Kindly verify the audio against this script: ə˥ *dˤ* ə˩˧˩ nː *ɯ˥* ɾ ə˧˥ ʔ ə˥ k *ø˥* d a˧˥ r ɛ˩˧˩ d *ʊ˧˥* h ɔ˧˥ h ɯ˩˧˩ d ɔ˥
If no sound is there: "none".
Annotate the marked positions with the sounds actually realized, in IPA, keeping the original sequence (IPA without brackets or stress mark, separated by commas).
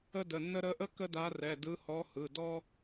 d, ə˥, ə˥, ɯ˧˥